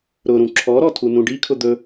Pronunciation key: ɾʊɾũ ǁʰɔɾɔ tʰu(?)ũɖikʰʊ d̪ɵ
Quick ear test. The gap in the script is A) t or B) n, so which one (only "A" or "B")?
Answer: B